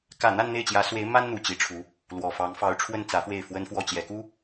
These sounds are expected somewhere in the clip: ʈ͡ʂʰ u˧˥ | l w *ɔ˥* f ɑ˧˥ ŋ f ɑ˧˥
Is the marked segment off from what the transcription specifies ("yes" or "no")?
yes